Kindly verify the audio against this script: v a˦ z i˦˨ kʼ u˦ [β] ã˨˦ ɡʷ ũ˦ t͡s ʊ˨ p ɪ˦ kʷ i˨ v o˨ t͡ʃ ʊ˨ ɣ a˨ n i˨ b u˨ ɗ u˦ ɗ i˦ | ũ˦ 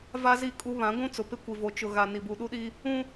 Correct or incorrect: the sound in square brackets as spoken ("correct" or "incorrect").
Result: correct